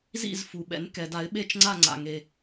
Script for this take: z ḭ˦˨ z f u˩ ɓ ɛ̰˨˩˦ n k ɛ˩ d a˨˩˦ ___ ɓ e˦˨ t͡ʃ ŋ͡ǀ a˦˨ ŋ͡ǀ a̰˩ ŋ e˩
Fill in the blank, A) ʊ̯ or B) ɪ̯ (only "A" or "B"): B